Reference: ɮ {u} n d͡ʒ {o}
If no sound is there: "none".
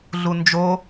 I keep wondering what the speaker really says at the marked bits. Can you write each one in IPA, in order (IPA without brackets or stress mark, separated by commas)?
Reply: u, o